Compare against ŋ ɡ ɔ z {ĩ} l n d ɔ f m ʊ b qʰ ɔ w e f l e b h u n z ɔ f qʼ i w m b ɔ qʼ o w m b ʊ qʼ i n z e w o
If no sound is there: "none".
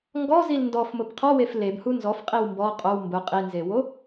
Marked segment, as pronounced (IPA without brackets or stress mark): i